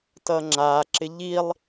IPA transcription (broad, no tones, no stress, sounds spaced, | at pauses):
t ʌ ŋ͡ǁ a ǁ ɪ ʎ i lˠ